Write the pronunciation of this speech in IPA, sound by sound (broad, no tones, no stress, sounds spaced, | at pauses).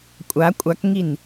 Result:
kʷʼ a kʷʼ a k ŋ i n